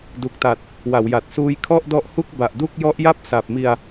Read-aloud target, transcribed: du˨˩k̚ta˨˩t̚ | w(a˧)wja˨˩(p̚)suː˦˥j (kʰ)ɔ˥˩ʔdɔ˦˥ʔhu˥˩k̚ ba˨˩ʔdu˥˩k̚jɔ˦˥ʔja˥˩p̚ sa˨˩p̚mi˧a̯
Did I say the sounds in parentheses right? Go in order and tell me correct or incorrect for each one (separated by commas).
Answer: incorrect, incorrect, correct